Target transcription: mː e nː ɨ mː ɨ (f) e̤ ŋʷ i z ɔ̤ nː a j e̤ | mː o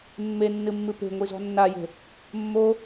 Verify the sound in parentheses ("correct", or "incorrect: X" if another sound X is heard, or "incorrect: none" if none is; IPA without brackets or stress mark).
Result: incorrect: p